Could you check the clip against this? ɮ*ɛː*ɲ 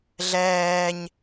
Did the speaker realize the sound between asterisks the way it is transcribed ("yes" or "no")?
yes